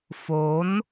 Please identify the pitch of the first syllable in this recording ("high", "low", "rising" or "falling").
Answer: rising